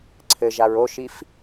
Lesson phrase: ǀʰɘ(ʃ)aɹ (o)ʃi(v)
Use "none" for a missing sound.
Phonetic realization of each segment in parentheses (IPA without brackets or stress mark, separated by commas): ʒ, o, f